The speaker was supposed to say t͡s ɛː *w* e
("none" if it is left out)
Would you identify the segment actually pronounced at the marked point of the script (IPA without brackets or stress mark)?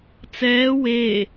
w